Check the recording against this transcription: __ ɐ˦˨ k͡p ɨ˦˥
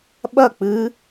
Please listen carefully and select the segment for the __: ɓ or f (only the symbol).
ɓ